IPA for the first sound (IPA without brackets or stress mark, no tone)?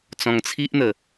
t͡s